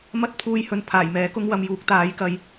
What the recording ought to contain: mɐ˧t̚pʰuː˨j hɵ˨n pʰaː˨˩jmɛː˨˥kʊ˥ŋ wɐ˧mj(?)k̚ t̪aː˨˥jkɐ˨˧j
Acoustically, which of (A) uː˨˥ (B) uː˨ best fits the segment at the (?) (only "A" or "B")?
A